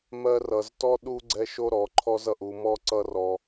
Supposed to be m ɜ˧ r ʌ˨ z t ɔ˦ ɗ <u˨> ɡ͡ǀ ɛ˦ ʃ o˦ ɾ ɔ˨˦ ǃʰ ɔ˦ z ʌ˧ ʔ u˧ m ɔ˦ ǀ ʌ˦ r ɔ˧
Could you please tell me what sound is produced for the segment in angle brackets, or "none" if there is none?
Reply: u˦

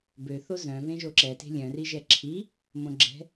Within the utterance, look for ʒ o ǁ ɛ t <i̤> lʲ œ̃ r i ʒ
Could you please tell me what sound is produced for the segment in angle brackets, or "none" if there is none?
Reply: e̤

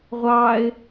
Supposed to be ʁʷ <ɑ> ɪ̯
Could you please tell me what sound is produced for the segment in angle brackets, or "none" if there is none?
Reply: ɑ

